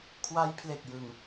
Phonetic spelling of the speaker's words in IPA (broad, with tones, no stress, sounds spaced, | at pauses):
kʰ w a˦˥ j pʰ l e˨˩ k̚ j ɯ˨˩ ŋ